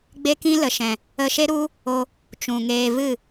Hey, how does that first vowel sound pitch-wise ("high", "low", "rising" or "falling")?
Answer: high